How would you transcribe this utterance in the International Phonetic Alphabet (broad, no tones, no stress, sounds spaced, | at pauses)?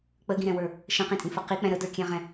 k͡p ə ɡ ĩ ɾ ɛ̃ w ə˞ | ʃ ə̃ q ĩ tʼ ĩ f ə q i k͡p ɛ̃ ɾ ə d ə˞ kʲ ɛ̃ ʁ ɛ̃